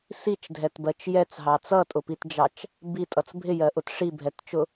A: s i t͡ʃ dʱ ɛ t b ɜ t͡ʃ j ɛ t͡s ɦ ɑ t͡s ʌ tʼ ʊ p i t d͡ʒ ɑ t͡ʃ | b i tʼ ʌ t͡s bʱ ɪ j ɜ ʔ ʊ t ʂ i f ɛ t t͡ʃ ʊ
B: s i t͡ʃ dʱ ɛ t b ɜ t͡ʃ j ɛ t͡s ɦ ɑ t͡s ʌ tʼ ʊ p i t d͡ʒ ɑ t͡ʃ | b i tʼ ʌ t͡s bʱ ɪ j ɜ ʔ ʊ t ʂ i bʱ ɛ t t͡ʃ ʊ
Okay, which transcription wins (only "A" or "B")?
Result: B